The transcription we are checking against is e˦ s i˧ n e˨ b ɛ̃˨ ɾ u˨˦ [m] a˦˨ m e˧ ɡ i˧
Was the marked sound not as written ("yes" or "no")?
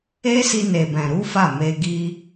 yes